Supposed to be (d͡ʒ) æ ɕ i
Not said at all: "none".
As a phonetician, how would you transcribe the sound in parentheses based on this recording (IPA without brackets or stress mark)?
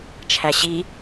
t͡ʃʰ